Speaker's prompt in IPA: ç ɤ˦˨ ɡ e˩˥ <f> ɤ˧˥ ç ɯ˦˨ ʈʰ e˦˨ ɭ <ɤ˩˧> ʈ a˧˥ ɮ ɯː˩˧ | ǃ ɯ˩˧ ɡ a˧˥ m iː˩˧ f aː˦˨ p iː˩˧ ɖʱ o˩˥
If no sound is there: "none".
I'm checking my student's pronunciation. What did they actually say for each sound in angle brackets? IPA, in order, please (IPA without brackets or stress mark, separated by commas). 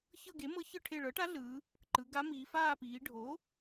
m, ɤ˩˥